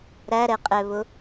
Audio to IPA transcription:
ɾ æ ɾ ɛ qʼ ɛ β ʊ

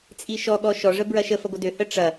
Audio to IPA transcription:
t͡sʼ i ʃ ɔ ɠ ɔ ʃ ɔ ʐ ə b ɹ ɐ ʃ ə f ɐ ɡʷ ə d ø h ə ʈ͡ʂ ɐ

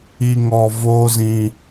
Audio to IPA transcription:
i˨ ŋ ɔ˨ v oː˦ z ĩ˦

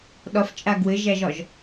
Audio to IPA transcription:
ɗ ɒ f t͡ʃʼ a ɡ w ɘ ʒ æ ʒ ɒ ʒ

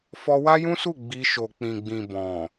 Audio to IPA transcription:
f ɔ˧ w a˦ j ũ˦ s u˦˨ ɡ͡b i˧ ʃ o˨ k͡p ĩ˨ ɡ͡b ĩ˨ b ɔ̃˨

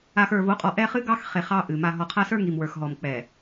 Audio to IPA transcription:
a˨ x ə˞˨ v o˨˦ qʼ ɔ˨ ʔ ɛ˦ χ ɨ˦ ɡ ɑ˦ x χ e˨ χ ɑ˦ ʔ ɨ˨ m a˨ ɦ ɔ˨ qʰ a˦ s ə˞˦ ŋ i˨ m w ə˞˨ x ɦ ɔ˨ m k͡p ɛ˨

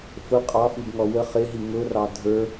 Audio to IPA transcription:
f ʊ qʼ ɑ f i b ŋ ɔ w ə χ ɪ ɦ i ŋ ʊ r ɑ dʱ ə˞

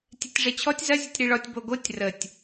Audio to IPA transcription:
tʲ ɛ tʲ ʐ ɛ t͡ɕʰ ɔ tʲ z ɐ zʲ ə tʲ ɾ i ɭ ɔ tʲ b o ɡ o tʲ r ə tʲ

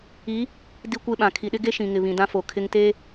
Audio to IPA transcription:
i˨˦ | d i˦ kʷ e˦ ɓ ã˨ kʰ i˨ ɗ ɪ˦ ɡ e˦ ʃ ĩ˨ ŋ ɪ˨ β ĩ˨ d ã˦ f o˨ kʰ ɪ˦ ŋ t e˦

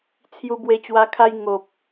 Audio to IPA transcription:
t͡sʰ j u˧ b w e˧ t͡ɕ w a˧ kʰ a˧ j ŋ o˨ p̚

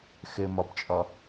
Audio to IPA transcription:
x ɘ m ɒ b t͡ʃʼ ɒ

